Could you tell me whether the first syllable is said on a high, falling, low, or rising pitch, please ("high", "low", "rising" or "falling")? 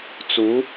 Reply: rising